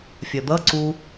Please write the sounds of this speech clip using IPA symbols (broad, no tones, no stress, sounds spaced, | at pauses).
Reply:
fʲ ɐ d̪ ʌ ǀ u